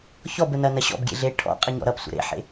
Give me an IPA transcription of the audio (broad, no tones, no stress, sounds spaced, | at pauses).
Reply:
ç ɔ b ə n ɐ n ɐ ɕ ɔ̰ b ɡʲ ḛ ɮ e ʈʰ ɔ̰ qʼ ə ɲ ɔ̰ ɾ ʌ p sʷ ə̰ ɾ ḛ ħ ḛ